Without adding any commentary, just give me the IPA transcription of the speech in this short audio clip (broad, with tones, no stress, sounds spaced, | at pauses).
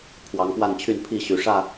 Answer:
pʰ w ɑ˨˦ ŋ p w a˥˨ n t͡ɕʰ y˥˨ n pʰ i˥˨ ɕ y˨˩ ʂ ä˥˨